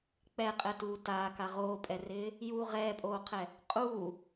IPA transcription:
k͡pɛqʼɛtuː taːka ʁoːpʼɛrɪː | ju ʁɛːpʼoːqʰɛ | qʼuː

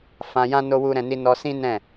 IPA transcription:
fã˧jã˦ no˦wu˦ɾɛ̃˧ni˦ nɔ˧sĩ˦ nɛ̃˦˨

